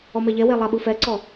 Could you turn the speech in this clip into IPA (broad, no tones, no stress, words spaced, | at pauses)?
ɔmɛʎɛwe lˠaɓɯfɛǀɔ